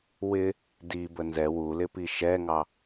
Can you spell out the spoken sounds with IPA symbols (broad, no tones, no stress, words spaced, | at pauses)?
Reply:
wɪ | dibə nzɛ wulɪpi ʃɛŋɑ